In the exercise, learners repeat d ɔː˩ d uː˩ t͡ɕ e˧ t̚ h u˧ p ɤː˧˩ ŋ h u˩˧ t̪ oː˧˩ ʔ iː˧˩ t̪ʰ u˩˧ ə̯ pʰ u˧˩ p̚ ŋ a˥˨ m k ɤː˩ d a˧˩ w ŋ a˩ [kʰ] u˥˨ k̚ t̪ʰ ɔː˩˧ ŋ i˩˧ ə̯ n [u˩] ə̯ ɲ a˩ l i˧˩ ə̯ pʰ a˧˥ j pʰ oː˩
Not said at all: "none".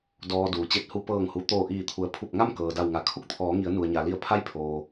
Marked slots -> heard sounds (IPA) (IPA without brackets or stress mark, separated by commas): kʰ, u˩